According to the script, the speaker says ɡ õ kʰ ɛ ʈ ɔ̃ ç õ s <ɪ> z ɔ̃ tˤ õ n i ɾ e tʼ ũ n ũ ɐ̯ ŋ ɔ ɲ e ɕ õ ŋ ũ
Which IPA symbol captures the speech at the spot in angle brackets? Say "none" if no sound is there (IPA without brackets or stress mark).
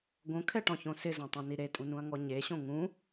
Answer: ɪ